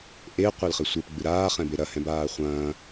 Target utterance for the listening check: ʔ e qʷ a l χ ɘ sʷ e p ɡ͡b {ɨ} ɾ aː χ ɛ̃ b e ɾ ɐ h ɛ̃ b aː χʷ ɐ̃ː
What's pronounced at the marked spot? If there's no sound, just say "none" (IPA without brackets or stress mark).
ɨ